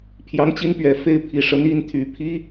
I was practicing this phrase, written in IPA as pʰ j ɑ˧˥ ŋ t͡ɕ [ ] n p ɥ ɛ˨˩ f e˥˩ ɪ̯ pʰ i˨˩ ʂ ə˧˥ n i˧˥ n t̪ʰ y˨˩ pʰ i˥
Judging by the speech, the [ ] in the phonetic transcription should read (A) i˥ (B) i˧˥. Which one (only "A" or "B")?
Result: A